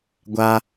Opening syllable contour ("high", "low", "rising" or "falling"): high